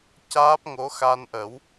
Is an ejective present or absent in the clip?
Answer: absent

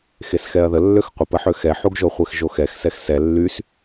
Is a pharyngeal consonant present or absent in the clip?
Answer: present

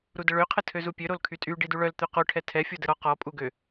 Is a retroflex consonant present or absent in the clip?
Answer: present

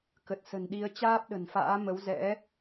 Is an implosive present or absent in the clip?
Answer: present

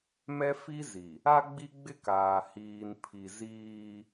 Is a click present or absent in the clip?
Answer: absent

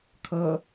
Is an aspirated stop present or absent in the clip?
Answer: present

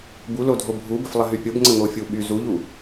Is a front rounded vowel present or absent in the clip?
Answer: present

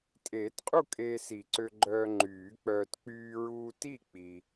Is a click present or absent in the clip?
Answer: present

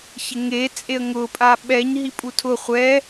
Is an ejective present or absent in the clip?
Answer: present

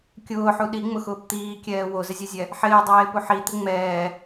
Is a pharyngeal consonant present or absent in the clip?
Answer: present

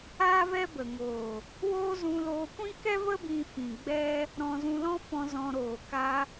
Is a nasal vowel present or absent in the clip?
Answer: present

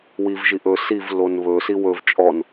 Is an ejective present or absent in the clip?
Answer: present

